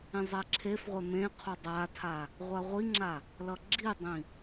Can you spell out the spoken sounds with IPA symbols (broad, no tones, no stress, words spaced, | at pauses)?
ĩzˤɛǁʰefʁʷɛ mẽqʰo dˤatʰa | ʁʷaʁʷiŋ͡ǁa | lʌɡ͡ǁidˤĩ